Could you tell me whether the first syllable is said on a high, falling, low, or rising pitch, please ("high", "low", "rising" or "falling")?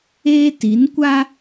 high